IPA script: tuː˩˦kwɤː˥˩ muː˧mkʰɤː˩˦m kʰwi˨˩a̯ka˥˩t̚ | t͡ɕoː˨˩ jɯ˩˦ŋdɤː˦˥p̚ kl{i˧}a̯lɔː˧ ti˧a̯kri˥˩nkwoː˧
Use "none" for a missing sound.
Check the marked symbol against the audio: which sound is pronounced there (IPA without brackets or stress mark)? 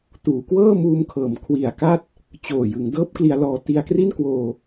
i˧